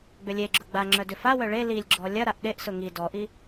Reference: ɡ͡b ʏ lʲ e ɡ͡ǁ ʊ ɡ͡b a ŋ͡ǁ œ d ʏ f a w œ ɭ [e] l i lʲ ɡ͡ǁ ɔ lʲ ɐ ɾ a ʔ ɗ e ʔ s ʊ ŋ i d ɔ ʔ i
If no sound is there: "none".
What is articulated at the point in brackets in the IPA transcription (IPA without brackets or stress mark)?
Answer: e